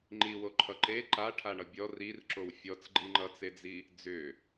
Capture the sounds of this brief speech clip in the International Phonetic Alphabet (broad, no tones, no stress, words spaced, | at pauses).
ŋ͡ǃiwo ǃʰʌǃe ǃa ʈʰaɳʌbʲɔ rirǁow fʲɔt͡sɡ͡ǃi ŋ͡ǃʌt͡sed͡zi | d͡zʏ